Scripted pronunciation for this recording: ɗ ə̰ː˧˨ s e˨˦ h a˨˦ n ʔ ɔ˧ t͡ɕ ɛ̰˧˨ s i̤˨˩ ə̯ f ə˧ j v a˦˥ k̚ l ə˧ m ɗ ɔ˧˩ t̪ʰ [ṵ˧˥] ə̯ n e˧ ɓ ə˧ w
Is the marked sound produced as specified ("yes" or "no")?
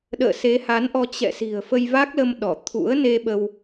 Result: yes